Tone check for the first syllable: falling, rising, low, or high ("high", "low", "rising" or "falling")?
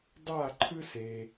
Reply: falling